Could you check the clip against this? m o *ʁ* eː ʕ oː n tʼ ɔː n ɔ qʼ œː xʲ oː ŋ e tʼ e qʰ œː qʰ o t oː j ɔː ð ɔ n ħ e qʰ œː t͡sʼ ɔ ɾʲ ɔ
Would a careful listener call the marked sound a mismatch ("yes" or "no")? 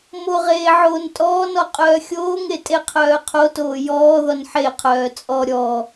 no